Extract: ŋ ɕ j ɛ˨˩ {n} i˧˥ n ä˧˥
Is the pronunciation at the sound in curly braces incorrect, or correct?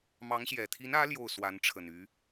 incorrect